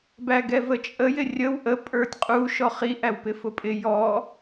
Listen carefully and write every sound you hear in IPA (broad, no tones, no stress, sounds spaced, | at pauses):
b æ ɡ ɛ v ə t͡ʃʼ ə j ɪ rʲ ə w ʔ ə pʼ ə˞ tʲ qʼ u ʃ ɔ χ i ʔ æ w p ɪ f ʊ pʼ ɪ j ɔ